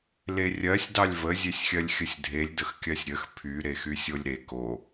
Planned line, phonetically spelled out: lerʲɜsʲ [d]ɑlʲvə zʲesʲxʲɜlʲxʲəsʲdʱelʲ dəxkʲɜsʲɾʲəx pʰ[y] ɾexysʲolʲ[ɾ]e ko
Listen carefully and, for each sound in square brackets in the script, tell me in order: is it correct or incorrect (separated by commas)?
correct, correct, correct